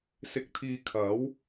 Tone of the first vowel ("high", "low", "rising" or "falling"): low